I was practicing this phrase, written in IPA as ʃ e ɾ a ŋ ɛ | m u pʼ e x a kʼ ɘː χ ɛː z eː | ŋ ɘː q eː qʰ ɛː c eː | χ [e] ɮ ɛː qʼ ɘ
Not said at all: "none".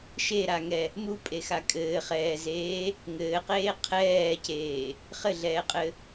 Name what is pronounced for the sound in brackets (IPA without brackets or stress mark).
ɘ